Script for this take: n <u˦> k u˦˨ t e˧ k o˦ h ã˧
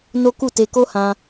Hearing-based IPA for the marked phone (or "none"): o˦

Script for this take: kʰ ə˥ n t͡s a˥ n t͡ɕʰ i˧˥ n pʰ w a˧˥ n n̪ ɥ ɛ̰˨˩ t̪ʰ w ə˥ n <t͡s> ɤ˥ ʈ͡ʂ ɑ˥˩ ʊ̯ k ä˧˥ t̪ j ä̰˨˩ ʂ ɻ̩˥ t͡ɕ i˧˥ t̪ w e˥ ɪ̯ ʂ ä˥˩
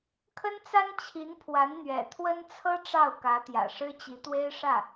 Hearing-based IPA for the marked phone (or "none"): t͡sʰ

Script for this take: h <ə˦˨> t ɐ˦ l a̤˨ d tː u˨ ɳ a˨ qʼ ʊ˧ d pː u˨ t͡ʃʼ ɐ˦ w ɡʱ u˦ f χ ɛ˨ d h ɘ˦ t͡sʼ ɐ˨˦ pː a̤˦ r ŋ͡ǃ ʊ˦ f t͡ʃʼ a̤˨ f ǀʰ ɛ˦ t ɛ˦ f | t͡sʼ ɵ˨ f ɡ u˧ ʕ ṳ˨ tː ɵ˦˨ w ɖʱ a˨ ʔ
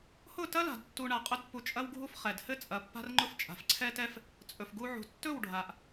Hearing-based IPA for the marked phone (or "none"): ʊ˦˨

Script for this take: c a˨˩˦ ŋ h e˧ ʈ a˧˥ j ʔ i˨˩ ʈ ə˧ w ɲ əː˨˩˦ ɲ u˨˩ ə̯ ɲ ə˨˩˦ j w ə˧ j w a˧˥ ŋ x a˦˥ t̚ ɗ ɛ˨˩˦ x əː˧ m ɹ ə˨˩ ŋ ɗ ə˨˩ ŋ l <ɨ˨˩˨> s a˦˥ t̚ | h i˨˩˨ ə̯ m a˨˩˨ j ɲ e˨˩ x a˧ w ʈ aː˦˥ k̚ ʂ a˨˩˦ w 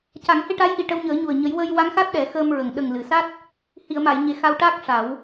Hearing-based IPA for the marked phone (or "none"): ɨ˨˩˨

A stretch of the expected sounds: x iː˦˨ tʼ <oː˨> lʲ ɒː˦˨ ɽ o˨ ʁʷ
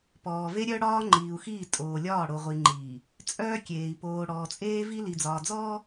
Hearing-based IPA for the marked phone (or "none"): oː˨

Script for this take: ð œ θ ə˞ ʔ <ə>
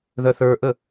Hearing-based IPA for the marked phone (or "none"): ə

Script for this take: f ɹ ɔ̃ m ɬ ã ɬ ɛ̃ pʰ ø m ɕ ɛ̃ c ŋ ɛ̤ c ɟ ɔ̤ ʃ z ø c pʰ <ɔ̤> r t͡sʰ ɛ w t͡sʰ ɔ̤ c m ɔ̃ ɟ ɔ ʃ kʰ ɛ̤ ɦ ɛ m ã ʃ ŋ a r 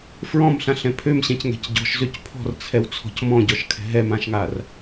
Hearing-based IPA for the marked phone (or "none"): ɔ̤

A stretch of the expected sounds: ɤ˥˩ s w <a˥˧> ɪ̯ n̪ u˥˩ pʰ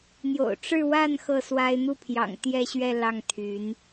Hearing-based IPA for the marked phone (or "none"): a˥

